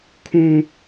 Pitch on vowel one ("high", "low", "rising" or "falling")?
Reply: high